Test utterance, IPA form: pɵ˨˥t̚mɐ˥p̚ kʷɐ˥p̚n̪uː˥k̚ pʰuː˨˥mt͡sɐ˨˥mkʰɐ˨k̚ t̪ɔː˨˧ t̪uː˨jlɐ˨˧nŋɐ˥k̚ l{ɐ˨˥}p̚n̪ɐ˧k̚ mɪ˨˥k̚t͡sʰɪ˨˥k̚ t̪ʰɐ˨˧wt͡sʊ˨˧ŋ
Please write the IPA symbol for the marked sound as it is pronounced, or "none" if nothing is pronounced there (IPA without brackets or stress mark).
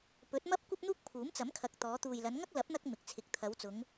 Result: ɐ˨˥